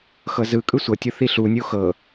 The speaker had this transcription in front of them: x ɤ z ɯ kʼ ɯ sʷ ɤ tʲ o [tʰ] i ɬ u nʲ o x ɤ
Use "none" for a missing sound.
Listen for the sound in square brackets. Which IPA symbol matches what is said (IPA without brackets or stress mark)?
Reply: θ